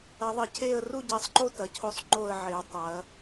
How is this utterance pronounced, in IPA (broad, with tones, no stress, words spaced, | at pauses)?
ɐ˨˦ðˤɘ˨˦cʰe˥˨ə̯ ru˥˨ɟe˨˦sˤǃo˥˨ tɐ˨˦cʰo˥˨sˤ ŋ͡ǃo˥˨ə̯ʕe˨˦ə̯ tˤɐ˨˦